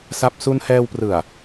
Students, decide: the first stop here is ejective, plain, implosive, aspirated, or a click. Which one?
plain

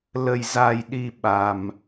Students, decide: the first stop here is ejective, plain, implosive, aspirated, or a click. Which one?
implosive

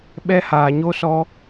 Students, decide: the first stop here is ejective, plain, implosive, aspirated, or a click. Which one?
implosive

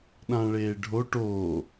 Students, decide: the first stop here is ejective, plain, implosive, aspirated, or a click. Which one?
implosive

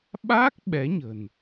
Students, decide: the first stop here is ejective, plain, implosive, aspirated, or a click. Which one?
implosive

